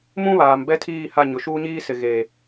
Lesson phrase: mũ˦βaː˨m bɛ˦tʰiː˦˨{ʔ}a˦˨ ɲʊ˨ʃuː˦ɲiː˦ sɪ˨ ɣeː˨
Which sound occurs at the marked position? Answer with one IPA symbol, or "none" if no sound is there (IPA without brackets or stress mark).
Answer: h